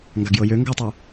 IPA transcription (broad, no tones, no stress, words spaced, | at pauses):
ŋɡaɡjɤjø ŋɡɤtˤu